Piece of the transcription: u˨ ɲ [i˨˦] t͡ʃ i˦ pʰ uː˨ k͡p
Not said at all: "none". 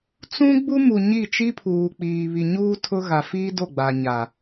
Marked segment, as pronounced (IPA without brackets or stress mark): i˦˨